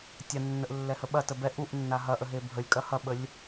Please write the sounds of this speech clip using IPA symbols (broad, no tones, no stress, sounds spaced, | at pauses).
tʲ a nː ə ʔ lː ɛ h ə ɓ ɐ t ə b ɛ ʔ u ʔ nː a ɦ ɐ ʔ ə ɦ e bʱ ə lʲ kʼ ɐ h ɐ ɓ ə lʲ